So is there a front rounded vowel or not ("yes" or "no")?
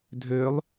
yes